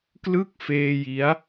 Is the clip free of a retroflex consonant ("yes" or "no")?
yes